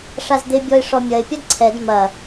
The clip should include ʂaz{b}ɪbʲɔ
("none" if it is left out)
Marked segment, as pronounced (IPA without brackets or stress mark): d̪